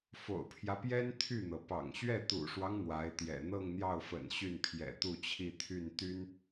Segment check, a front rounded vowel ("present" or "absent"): present